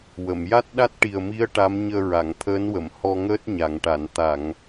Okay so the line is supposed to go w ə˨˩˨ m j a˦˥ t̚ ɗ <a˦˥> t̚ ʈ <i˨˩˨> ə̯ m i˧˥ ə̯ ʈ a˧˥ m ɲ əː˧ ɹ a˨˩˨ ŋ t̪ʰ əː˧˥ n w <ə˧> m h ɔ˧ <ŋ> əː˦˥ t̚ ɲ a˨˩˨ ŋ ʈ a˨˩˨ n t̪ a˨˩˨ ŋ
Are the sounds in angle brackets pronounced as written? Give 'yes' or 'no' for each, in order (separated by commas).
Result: yes, no, no, yes